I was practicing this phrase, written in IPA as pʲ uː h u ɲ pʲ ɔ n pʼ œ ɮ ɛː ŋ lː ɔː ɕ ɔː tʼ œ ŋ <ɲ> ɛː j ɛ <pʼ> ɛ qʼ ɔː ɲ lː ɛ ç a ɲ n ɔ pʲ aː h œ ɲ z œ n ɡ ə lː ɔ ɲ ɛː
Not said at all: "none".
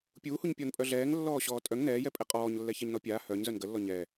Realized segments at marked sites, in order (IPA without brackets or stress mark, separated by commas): n, pʼ